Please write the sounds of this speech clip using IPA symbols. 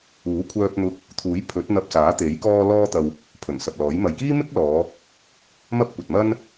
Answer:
uː˨˥ kʷʰœː˧p̚n̪ʊ˧k̚ | t̪ʰuː˨˥jpʰɵ˨˥t̚n̪ɐ˧p̚ saː˨˥t̪e˨˥j kɔː˧lɔː˧t̪ɐ˨w | pʰɵ˨˩nsɐ˨p̚lɔː˨˥jmɐ˧j kiː˥mɪ˥k̚ lɔː˨˧ | mɐ˥p̚kʷɐ˨t̚mɐ˥n

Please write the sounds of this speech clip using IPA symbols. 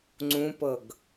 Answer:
ŋ͡ǀũpɤɡ

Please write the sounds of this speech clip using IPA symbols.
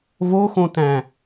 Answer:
voxõtæ̃

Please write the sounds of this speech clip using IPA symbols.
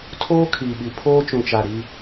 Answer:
tʰoː˦ kʰiː˨ɓi˨ pʰoː˦t͡ʃũ˨t͡ʃa˨ ɾi˦

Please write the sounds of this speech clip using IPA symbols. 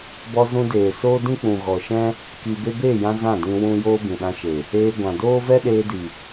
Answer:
bɔ˧zũ˧deː˨ soː˦dĩ˦ k͡pũ˨ ɣɔ˨ʃɛ̃˦ | ki˧ be˧beː˦˨jã˧ zã˦˨dĩ˧ wũ˧ joː˦bĩ˨ɗã˧ʃe˨ | eː˧ ɡʷã˨doː˦vɛ˦ ɗeː˧di˨

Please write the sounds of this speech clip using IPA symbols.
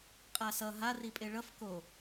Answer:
qʼasʌ ɦa ripʼeɭʌf ko

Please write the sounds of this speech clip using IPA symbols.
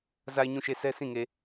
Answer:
za˨ɪ̯ɲũ˨ʃe˨ sɛ˦sĩ˦˨ŋe˨

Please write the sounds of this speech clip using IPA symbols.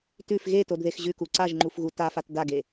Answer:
tʉf ɣetodðex ʑʉku ǀaʒŋ͡ǃufɣu tafat daɡe

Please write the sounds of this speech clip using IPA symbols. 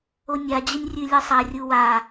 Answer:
onʲa d͡ʑɘnʲrʲʉlʲɘsˤa rʲuwa

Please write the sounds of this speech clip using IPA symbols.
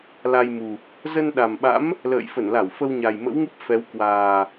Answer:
la˧jmu˨˩ | zə˧nɗa˨˩mɓa̰˧˥m | lə̰ː˧˨jfə˧˩nla˧˩w fə˧wɲa˨˩jmə̰˧˥wŋɨ˦˥p̚ fɛ˨˦wkwaː˨˩

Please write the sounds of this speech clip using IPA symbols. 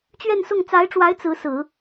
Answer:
t͡ɕɥɛ˥˧nsʊ˥˩ŋ t͡sa˧˥ɪ̯ʈ͡ʂwa˧˥ɪ̯ t͡sɹ̩˧˥sɹ̩˨˩˦

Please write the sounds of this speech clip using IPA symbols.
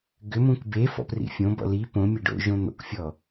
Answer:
ɡʏmũk be fɔ̰prḭfʲõbɔ̰ li põ mʲeɖo̰ʒõ n̪o̰kfʲɔ

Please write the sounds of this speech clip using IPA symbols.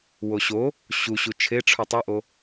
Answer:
woɕo | ɕuɕu t͡ʃʰeʈ͡ʂʰu tˤuʔo

